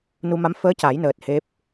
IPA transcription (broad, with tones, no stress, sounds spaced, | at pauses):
n u˧ m a˧˥ m f əː˧˥ c a˨˩˦ j n əː˨˩ t̚ h e˦˥ p̚